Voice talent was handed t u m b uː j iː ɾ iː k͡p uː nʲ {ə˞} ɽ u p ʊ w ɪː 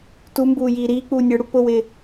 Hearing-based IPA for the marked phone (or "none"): ə˞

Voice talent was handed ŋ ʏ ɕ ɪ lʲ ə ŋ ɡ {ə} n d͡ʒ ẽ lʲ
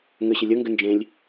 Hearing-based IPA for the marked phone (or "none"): ʏ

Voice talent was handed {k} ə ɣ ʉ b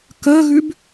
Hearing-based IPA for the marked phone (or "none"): k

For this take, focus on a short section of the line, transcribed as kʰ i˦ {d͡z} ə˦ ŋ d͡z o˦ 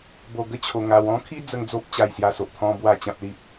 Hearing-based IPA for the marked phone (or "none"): d͡z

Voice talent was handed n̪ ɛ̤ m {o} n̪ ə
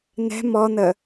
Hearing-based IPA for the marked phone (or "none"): ɔ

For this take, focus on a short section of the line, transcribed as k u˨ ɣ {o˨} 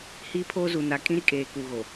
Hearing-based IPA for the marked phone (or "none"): o˨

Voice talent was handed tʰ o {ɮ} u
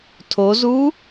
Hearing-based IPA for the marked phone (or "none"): z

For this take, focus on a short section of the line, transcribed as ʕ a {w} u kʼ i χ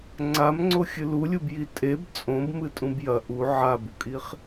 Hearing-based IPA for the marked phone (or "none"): b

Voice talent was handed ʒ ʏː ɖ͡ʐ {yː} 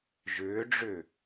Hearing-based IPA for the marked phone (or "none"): ʏː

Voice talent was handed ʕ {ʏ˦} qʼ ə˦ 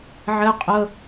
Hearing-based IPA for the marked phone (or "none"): ɛ˦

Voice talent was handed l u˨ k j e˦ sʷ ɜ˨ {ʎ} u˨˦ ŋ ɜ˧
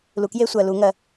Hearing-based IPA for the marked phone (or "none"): l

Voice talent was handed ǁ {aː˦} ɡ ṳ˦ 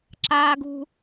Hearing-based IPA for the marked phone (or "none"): aː˦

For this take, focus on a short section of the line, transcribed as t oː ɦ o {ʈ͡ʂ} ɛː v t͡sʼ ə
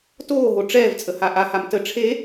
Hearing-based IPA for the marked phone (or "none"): ʈ͡ʂ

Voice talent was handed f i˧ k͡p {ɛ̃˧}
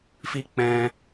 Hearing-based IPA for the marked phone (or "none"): ɛ̃˧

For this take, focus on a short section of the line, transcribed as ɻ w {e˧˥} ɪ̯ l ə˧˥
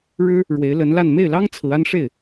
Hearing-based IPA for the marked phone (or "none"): e˧˥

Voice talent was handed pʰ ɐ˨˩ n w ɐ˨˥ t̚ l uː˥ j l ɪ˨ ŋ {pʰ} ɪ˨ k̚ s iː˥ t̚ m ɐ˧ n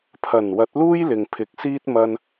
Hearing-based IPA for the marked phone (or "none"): pʰ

